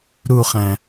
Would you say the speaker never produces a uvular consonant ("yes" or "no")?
no